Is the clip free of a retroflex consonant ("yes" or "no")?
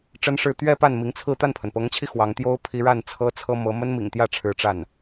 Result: no